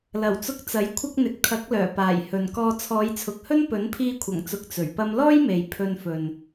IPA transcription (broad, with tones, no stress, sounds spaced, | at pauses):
l ɐ˨˩ w t͡s ʊ˧ k̚ t͡s ɐ˨˥ j kʷʰ ɐ˥ k̚ n̪ ɪ˨ k̚ t̪ʰ ɐ˨˥ k̚ l œː˨˩ p aː˨˩ j h ɵ˨ n k ɔː˧ t͡sʰ ɔː˨˧ j t͡sʰ ʊ˨˥ k̚ h ɵ˥ n p ɵ˨˥ n pʰ iː˧ kʷʰ ɐ˨˩ ŋ t͡s ʊ˨ k̚ t͡s ɵ˨˩ ɥ p ɐ˥ m l ɔː˥ j m e˨ j pʰ ɵ˧ n f ɵ˨ n